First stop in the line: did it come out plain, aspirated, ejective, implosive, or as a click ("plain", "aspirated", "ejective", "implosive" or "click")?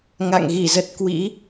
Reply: plain